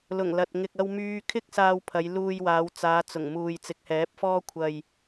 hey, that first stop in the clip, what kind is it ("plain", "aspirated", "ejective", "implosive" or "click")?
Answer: plain